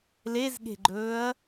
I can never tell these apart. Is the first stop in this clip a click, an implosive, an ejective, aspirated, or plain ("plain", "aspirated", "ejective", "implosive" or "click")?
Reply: implosive